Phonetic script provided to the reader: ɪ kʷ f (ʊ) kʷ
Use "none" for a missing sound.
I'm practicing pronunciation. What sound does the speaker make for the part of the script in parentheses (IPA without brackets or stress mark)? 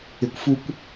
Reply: u